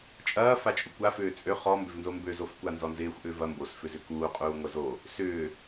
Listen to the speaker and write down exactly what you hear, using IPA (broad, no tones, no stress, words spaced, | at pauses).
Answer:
t͡ʃʼɐːfat͡ʃʼʊ kʷa fʏːt͡sʼø χɔmbʏv nzombøzofkʷa nzɔnzɪːxʷ ʔʏːvɐ mbosfʏzʏ kuː qʼuːŋʷɐzo | sʏː